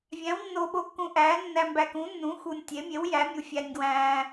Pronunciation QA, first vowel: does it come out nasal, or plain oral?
nasal